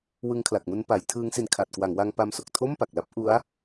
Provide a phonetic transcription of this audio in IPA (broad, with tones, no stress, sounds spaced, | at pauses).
w ɯ˦˥ ŋ kʰ l a˨˩ k̚ m u˦˥ n p a˩˦ j tʰ ɯː˦˥ ŋ s i˧ n kʰ a˨˩ t̚ k w a˩˦ ŋ w a˧ ŋ p a˧ m s o˨˩ k̚ tʰ o˥˩ m p a˨˩ k̚ l a˥˩ p̚ ʔ u˦˥ a̯